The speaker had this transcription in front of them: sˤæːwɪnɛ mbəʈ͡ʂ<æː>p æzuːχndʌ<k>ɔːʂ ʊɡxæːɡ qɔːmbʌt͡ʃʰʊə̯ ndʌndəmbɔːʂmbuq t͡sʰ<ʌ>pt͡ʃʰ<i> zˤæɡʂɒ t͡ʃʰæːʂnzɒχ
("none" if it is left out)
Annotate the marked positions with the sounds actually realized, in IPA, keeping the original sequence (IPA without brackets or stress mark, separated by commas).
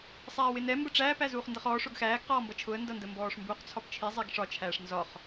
æː, χ, ɒ, i